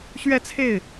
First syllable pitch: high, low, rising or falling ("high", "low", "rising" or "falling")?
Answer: high